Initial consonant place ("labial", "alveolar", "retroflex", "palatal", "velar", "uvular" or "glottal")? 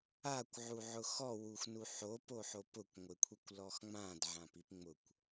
velar